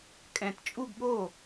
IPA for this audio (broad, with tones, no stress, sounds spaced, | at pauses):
kʼ ɛ̃˨˩ t t͡ʃʼ u˥˧ ɡ ɠ o˥˩